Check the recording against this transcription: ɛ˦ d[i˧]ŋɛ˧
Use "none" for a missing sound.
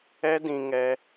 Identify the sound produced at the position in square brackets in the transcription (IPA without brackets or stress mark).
ĩ˧